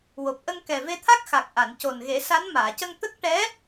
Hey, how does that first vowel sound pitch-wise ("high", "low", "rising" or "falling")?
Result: low